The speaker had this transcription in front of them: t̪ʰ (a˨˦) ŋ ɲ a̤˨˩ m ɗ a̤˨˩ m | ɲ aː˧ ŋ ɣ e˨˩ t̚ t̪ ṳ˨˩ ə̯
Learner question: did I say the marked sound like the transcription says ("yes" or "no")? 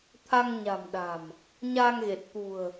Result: no